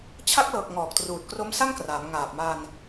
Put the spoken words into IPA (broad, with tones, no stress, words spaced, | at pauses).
t͡ɕʰa˦˥k̚lɤː˨˩k̚ŋɔː˨˩k̚ truː˨˩t̚kro˦˥msa˥˩ŋkraː˩˦m ŋaː˨˩p̚ma˧n